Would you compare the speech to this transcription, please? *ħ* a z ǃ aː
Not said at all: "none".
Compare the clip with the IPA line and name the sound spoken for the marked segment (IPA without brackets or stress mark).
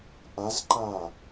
ʔ